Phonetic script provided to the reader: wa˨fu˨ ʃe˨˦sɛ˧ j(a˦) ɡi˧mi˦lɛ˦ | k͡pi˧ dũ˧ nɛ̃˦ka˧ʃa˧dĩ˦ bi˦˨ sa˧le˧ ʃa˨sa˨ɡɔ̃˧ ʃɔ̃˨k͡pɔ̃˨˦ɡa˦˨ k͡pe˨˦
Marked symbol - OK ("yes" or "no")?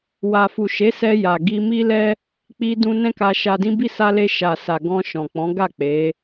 no